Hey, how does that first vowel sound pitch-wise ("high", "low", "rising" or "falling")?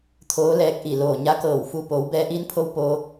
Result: rising